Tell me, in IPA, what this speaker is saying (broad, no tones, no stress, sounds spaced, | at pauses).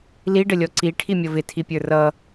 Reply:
l i ɖ ə lʲ ɔ ǀ i ʈʰ i mʲ ʌ v ɪ tʰ i pʲ ə˞ r ʌ